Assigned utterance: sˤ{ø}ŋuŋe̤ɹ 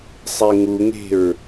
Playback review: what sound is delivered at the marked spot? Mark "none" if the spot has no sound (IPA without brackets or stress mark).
e